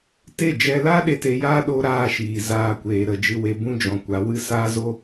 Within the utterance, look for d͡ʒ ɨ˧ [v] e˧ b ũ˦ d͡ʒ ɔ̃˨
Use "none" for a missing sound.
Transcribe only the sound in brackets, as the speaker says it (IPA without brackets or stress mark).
w